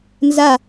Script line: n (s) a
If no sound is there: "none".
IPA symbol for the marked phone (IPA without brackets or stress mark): z